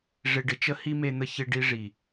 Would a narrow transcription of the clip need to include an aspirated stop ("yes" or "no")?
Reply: no